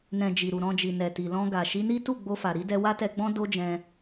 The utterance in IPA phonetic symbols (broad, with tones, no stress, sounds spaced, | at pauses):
n ɛ̃˨ d͡ʒ i˨ ɾ u˨ ɾ ɔ̃˧ d͡ʒ i˨ n ɛ˨ t i˨ l ɔ̃˧ ɡ a˨ ʃ i˨˦ n i˦ t u˦˨ ɡ͡b o˧ f a˨ ɾ i˨˦ d ɛ˧ w a˦ t ɛ˧ ɡ͡b ɔ̃˦ d o˦ d͡ʒ ɛ̃˧